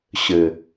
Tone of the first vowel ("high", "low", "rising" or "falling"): low